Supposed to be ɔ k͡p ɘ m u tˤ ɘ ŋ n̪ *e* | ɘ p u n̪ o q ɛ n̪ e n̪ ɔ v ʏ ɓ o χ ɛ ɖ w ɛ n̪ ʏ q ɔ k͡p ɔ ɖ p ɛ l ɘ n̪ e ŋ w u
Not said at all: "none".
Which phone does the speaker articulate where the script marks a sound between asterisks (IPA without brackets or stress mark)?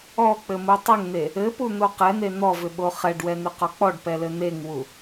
e